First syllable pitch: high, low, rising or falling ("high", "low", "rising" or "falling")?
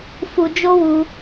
low